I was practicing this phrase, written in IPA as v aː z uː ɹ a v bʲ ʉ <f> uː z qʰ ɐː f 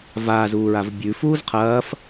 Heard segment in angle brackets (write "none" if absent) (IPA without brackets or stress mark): f